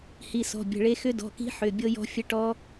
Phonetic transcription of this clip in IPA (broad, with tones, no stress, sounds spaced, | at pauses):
h i˩˧˩ s ɔ̤˩˧˩ bʲ ə̤˩˧˩ ɭ e˦˥ x ʏ˦˥ d ɔ̤˩˧˩ k i̤˦˥ ħ ʏ˩˧˩ bʲ ɤ˦˥ j ɔ̤˦˥ fʲ ə˦˥ ʈ ɔ˦˥